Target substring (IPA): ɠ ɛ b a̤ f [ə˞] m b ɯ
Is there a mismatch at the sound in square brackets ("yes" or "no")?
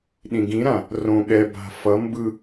yes